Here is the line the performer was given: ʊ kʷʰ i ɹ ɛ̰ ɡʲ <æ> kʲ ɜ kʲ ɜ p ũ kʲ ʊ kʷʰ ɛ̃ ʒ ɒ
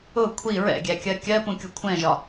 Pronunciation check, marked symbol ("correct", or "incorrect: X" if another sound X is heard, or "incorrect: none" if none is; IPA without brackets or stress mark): correct